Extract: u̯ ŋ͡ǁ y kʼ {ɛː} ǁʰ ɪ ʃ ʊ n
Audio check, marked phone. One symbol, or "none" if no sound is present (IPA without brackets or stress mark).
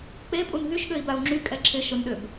ɛ